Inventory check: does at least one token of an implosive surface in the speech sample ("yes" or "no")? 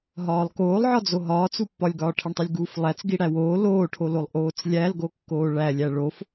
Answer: no